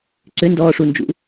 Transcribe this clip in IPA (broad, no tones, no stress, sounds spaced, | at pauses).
ǀ ʏ n d ɔː ʂ u n d͡ʒ ṵ